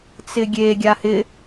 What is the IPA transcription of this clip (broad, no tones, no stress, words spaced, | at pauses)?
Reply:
t͡sɪɡʲe ɡʲahɪ